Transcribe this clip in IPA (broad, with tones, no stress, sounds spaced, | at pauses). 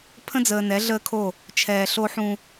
pʰ ə̃˦ d͡z əː˨ n ɛ˨˦ ɮ əː˦ kʰ o˦˨ | t͡ʃʰ ɛː˨ ɬ o˦ ħ ũ˦